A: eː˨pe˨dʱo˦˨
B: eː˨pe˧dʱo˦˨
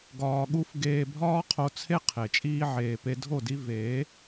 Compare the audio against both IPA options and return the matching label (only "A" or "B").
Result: B